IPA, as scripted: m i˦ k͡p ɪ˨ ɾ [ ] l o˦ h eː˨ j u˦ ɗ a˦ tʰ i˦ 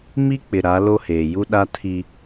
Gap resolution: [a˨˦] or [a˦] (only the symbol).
a˨˦